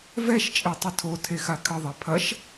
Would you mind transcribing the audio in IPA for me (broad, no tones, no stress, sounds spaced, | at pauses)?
v ɛ ʃ t͡ʃʼ e tˤ ɘ tʰ o tʰ e x a kʰ ɘ ðˤ e pʰ ɐ ʃ